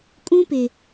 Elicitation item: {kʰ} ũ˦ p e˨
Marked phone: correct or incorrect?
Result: incorrect